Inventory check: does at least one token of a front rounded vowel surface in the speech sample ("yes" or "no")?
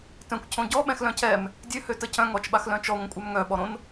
yes